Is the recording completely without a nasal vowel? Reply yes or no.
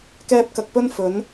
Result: yes